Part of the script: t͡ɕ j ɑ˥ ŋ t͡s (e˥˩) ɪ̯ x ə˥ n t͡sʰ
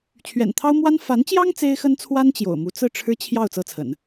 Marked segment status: incorrect: e˥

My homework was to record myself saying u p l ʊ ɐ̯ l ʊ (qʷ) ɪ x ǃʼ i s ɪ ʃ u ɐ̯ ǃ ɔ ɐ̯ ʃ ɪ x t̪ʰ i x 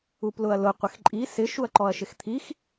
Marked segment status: correct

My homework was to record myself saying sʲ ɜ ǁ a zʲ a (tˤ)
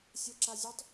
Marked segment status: correct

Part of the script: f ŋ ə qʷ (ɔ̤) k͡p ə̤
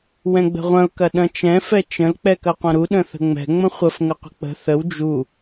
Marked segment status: incorrect: ə̤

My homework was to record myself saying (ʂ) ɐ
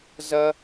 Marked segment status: incorrect: z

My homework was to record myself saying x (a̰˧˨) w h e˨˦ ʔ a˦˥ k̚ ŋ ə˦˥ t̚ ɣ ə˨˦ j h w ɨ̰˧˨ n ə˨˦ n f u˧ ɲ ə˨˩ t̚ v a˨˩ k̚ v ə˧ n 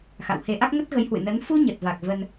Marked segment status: correct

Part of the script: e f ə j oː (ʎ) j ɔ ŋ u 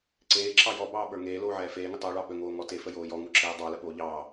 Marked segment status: incorrect: none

